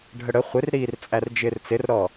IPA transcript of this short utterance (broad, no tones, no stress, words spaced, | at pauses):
ɖʱəɽə χʷɪrɾiːrt͡sʼær d͡ʒɪːrt͡sɪrɾɔ